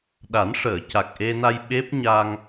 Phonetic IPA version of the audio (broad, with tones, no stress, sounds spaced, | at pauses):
ɗ a˨˩˦ n ʂ əː˨˩˨ c a˨˩ k̚ ʔ e˧ n a˧ j ɓ e˦˥ p̚ ɲ a˧ ŋ